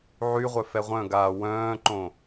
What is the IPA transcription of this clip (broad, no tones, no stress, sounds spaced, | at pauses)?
ʕ y ʁʷ œ f ɛ ʁʷ œ̃ ɡ aː w œ̃ː ǃ õ